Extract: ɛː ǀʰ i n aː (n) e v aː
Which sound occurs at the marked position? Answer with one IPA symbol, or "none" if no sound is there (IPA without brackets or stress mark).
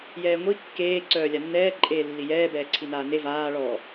n